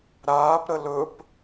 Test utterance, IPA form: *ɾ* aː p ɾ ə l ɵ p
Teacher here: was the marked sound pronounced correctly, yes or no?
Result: yes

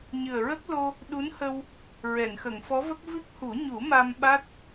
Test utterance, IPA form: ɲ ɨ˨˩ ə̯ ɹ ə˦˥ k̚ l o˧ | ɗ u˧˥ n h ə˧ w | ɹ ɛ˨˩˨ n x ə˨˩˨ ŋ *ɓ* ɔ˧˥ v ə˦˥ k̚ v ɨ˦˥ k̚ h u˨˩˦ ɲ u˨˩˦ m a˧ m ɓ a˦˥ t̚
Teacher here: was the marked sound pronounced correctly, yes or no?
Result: no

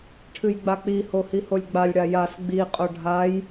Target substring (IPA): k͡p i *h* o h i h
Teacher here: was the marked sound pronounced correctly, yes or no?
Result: yes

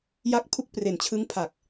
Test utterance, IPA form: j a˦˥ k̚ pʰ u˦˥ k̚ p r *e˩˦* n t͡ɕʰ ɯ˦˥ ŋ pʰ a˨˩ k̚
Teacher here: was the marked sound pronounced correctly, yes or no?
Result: yes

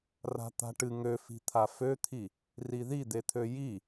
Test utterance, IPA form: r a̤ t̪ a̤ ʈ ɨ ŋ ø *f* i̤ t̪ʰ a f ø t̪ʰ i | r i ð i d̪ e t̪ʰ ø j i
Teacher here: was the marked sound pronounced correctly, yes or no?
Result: yes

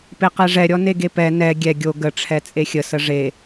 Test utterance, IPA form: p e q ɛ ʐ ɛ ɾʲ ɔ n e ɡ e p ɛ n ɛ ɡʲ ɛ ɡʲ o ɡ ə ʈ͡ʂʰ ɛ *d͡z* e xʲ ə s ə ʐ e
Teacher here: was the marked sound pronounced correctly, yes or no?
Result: no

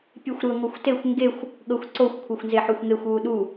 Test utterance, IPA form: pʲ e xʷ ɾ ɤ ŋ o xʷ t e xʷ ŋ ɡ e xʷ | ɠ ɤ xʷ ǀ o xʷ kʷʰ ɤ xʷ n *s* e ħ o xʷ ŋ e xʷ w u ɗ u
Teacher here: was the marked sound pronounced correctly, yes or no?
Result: no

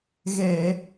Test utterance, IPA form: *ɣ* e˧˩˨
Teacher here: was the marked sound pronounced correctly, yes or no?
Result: yes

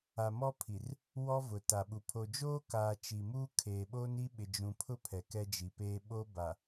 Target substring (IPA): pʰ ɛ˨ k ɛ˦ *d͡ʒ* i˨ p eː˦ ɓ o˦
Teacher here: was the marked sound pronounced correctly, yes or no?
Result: yes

